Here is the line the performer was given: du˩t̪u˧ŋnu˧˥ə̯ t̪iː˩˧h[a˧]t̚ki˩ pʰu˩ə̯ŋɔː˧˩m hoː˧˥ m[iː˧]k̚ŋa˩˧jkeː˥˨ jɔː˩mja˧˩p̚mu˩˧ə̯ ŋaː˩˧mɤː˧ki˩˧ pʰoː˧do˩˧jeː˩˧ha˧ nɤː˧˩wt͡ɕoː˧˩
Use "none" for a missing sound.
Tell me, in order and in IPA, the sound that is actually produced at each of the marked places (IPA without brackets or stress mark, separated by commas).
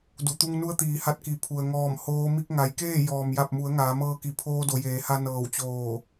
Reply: a˧, i˧